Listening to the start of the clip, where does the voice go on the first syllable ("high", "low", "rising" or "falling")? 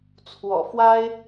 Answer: low